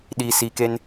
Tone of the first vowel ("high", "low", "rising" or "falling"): low